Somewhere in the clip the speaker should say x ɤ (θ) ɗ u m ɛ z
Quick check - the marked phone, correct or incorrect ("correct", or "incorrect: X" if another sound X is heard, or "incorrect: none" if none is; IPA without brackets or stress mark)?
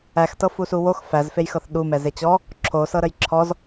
correct